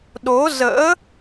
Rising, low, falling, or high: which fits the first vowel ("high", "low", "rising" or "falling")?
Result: rising